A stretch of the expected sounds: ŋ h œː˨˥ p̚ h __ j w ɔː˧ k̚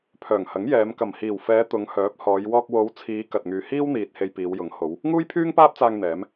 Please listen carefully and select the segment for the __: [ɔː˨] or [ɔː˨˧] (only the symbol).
ɔː˨˧